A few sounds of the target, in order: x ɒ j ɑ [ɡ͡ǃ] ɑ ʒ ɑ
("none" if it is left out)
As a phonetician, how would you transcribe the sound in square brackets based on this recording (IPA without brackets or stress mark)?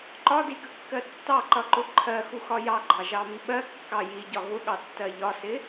ɡ͡ǃ